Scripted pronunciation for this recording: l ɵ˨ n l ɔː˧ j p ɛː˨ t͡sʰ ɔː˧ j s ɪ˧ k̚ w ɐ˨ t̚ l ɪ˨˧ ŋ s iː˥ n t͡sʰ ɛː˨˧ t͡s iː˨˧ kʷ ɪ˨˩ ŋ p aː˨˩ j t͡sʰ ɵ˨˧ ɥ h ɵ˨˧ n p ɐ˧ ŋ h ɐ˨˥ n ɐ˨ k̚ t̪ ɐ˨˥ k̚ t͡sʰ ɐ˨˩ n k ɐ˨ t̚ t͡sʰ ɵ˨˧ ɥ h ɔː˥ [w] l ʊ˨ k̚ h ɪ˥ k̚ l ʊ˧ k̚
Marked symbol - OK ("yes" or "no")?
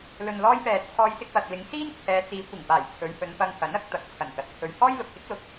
no